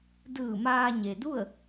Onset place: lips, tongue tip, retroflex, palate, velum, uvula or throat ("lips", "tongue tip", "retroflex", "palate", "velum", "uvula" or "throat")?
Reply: tongue tip